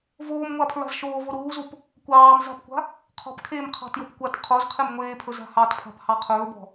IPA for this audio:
v oː m ŋʷ a pʰ ɹ a̤ z ʃ oː v o ɾ uː z u p | kʷ ɑː m z a̤ p kʷ a̤ | qʰ ɔ̤ p kʰ eː m qʰ ɑ̤ t j o p kʷ a t qʰ o z qʰ e m ŋʷ eː pʰ ɵ z a̤ h ɑ t pʰ a̤ p h ɑ qʰ ɵː b ɔ̤

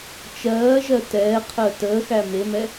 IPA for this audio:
t͡ʃ ɜː ʒ ɜ t ɛː qʰ əː t əː x æ m e m ɛ

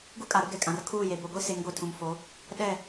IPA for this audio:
ɡ u˦ kʼ a˨ ɾ ʊ˦ ɡ ɛ˨ kʼ ã˨ r kʰ uː˦˨ j e˨ b o˨ ɡʷ i˦ s e˨˦ ŋ ɡʷ e˨ tʰ ũ˨ m f o˨˦ | ɗ ɛ˦˨

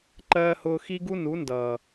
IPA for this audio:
ǃ ɜː˦ h ʊː˧ x i˦ ɡ u˦ n u˨˦ n d ʌː˨

